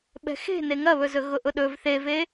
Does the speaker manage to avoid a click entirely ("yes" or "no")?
yes